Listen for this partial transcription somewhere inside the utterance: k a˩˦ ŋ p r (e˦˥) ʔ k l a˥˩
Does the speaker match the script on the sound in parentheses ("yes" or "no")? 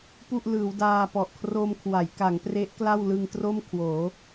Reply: yes